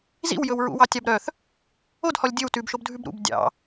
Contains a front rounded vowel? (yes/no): yes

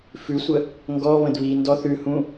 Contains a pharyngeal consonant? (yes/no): no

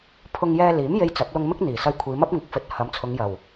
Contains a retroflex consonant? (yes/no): no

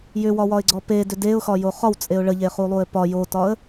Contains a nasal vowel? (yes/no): no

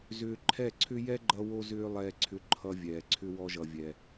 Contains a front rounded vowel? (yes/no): yes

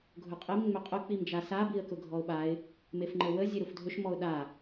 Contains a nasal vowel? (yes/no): no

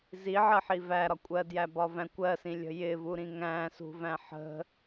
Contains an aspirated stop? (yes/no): no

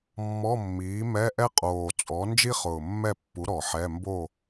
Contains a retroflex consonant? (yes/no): no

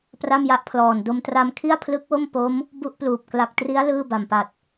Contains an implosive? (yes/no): no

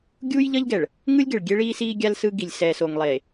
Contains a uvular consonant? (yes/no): no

